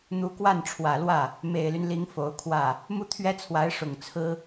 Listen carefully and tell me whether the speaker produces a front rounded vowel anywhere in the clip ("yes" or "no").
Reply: yes